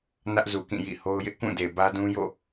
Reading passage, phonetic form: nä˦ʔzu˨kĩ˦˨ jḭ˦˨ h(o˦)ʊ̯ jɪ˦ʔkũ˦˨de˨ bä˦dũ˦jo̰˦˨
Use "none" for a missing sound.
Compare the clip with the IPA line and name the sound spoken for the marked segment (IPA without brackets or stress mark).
o˦